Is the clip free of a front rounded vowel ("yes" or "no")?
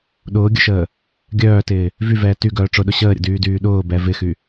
no